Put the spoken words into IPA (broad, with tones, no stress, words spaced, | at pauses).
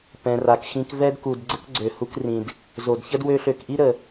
pɛ̃˨ra˨kxĩ˧k vɛ˦dku˨d ɡ͡ǀə˦kɡ͡ǀø˨hu˧krĩ˨d | zo˨dçə˦d wø˧ɬø˨kʔi˦ ɾə˨